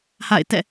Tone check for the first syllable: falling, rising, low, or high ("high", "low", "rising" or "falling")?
falling